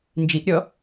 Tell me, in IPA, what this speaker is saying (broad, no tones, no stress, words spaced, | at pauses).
nd͡ʒiʔɾʲɔ